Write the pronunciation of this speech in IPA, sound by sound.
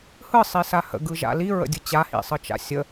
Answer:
hɯsˤisa hə̰ɡɯʒa̰ liɹə̰dʲɯ t͡ɕahḭsˤɯt͡ʃa̰ sʲə

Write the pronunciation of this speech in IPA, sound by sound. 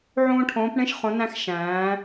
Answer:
ʕõː˥ʈʰõː˧˥pɳẽ˥ʃ χõ˧˥næ̃˥x ʃæ̃ː˧˥

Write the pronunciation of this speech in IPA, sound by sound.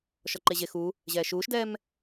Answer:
ʃɔǃeʑe xu | ʑɛːʃuːʃdɛːm

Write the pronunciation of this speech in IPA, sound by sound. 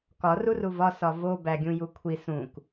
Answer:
kɒ ruruvɒ sɒvo bæɡʲũjukʷʰi sũk

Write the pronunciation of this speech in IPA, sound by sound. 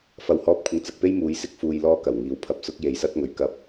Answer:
fɐ˨whɔː˧p̚kʷʰɪ˨˧ŋ t͡sɐ˨k̚pe˥j muː˨˧jsɪ˥k̚fuː˧j lɔː˥kɐ˨˩wŋiː˨˧w pʰɐ˧p̚sʊ˥k̚ je˨jsɐ˥t̚ŋɵ˨ɥkɐ˧p̚

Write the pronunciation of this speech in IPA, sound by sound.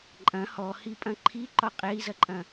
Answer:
ǃʼɐ̃ hɔhipʼɐ̃ ǃʰiǃɒ qʼɛi̯zɐǃʼɐ̃

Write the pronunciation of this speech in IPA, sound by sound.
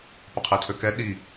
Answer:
pɐqʰɛtʰøkɛ ɗi

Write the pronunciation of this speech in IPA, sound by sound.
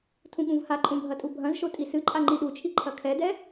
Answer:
tʰũɠũvhaǃʼũ bʱɐtʼubʱɐ̃zʃo tʼisɨǃʼa ŋ͡ǃiɗut͡ʃʰi ǃʰɐkʰɛdɛ

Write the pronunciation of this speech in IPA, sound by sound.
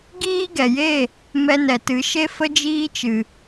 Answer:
ɡiː˦ɡɛ˨je˦˨ | mɛ˧nɛ˨tɨ˨˦ ʃe˦fə˦ d͡ʒiː˦t͡ʃɨ˨

